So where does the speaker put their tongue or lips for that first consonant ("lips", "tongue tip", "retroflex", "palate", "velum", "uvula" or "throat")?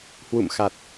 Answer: throat